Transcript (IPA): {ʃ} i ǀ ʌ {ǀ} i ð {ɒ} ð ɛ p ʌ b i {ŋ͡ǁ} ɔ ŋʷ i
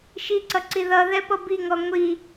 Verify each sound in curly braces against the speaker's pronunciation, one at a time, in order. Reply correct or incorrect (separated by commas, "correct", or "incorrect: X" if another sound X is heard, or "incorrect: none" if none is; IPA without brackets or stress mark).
correct, correct, incorrect: ʌ, incorrect: ŋ